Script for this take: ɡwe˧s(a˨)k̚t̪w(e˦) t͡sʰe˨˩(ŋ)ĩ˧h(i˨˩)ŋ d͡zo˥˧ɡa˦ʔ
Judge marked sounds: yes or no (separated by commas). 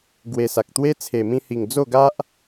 yes, yes, no, yes